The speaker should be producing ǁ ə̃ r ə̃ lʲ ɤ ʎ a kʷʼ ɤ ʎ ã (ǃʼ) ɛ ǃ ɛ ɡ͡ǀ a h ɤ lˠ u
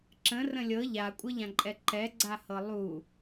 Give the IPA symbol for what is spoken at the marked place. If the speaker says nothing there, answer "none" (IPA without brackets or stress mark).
ǃʼ